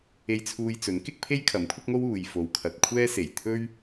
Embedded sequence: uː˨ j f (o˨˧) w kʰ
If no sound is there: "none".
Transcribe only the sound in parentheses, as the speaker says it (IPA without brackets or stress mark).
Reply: o˨˧